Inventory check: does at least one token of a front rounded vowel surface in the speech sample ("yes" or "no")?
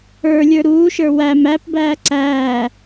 no